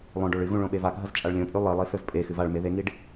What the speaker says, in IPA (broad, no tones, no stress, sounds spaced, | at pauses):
lˠ õ ɖ o ɭ ɨ ɣ ũ ɭ õ ɓ e v a ɡʱ ɐ z t͡ʃʼ a ɭ lʲ õ pʼ ʉ lˠ i lˠ i s ɵ z pʼ e x ɨ v a ɭ m e ð e ŋ i ɖ